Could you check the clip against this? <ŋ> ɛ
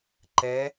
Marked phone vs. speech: incorrect: ǃ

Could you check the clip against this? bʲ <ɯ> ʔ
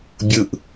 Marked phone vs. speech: correct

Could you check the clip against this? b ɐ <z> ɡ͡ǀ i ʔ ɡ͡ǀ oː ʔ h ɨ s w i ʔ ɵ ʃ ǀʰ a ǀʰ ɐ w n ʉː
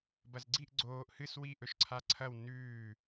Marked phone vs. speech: correct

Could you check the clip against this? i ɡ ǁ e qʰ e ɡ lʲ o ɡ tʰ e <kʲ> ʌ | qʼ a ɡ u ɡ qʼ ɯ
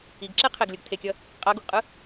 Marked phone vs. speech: correct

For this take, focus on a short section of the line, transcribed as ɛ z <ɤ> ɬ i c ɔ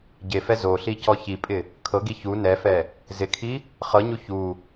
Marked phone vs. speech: incorrect: o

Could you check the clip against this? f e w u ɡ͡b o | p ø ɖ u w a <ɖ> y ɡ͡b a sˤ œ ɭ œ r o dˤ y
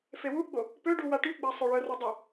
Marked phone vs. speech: incorrect: ʈ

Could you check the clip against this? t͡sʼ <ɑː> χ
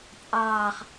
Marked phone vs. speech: correct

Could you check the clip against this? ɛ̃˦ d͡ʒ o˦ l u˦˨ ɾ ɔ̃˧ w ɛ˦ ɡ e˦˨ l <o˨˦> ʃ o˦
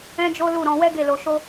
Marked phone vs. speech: incorrect: o˧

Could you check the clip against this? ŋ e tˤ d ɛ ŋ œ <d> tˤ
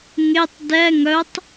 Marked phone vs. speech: incorrect: none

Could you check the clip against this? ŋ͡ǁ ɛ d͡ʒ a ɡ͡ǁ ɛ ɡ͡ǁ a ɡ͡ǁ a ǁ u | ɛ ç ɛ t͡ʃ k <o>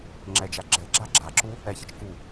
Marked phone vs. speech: incorrect: u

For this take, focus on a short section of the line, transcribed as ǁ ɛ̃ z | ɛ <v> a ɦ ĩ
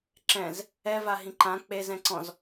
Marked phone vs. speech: correct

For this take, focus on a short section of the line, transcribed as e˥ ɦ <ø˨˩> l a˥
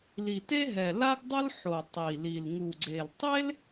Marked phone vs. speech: incorrect: ɛ˨˩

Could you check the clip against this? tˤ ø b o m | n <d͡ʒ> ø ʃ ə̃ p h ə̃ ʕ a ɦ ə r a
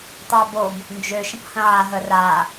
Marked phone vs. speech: correct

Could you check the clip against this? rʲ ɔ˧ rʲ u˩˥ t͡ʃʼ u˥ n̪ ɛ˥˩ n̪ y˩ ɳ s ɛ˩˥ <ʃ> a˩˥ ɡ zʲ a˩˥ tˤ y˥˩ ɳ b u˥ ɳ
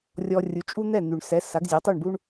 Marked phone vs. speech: incorrect: s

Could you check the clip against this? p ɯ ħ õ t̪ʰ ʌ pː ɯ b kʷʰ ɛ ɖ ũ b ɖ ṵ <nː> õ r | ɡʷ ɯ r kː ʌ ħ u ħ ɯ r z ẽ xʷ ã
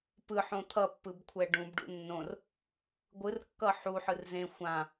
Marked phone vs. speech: correct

